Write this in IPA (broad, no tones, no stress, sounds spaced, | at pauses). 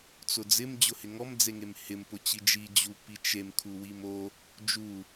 t͡s ʊ d͡z ɪ m d͡ʑ ʊ h ɪ ŋ ɔ m d͡z e ŋ e m h ɪ m p ʊ t͡ɕ i d͡ʒ i d͡ʑ u p i t͡ʃ e m kʰ u w i m o | d͡ʒ u